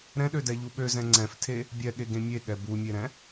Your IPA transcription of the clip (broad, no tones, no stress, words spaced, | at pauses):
ɾɛ̃ɗødɛʎu ɓøzɛ̃ ŋ͡ǀɛ̃ftʰe | bʲɛɠeɡẽ mʲeɠɛ bumʲeɾɛ̃